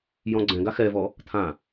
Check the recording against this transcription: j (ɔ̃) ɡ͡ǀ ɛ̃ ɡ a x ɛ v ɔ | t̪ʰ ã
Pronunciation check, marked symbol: correct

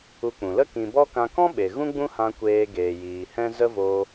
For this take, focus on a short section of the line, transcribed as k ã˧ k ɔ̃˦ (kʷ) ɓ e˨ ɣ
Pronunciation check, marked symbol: incorrect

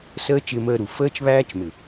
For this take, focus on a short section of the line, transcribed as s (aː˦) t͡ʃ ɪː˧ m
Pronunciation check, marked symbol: incorrect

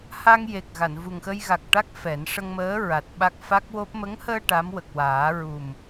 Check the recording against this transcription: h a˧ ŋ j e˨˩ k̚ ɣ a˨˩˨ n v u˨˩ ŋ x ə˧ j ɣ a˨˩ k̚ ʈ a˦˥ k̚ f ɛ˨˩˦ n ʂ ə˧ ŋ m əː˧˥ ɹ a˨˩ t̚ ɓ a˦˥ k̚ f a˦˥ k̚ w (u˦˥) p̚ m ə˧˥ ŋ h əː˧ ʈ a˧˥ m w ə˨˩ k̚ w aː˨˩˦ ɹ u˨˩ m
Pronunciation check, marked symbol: incorrect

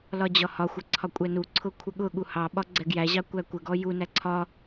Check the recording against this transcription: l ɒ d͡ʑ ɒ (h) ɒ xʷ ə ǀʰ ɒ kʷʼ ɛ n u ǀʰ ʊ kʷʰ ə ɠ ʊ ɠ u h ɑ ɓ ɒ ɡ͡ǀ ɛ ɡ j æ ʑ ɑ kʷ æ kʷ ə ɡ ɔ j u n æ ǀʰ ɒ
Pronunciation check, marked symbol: correct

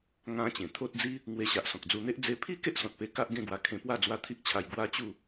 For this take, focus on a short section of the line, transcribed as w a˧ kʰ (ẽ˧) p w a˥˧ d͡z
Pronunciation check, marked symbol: correct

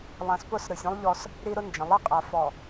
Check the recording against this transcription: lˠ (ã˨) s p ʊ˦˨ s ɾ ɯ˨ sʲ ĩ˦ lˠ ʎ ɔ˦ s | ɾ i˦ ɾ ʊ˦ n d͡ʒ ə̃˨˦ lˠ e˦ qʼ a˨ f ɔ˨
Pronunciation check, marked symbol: correct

